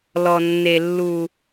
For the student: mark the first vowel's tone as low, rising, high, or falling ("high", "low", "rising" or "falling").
low